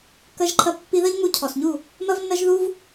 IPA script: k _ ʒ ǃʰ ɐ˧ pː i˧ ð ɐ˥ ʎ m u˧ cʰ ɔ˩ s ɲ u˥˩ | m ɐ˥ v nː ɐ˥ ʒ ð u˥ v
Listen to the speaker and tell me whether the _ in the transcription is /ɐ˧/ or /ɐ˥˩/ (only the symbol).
ɐ˧